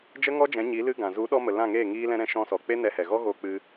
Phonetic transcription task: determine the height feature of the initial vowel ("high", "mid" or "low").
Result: mid